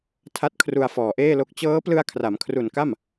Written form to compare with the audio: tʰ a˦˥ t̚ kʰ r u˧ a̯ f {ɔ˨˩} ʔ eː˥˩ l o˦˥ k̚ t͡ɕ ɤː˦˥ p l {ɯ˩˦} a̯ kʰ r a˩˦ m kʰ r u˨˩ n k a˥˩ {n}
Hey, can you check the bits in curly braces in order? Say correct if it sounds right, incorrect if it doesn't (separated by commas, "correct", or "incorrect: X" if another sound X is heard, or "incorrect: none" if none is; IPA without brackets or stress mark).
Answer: incorrect: ɔː˨˩, incorrect: ɯ˧, incorrect: m